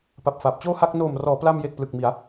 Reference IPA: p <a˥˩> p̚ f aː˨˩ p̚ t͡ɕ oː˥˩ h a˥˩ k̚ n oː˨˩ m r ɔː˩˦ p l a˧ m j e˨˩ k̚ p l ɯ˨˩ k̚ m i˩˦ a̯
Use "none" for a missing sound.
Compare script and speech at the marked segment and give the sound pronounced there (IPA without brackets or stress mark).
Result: a˨˩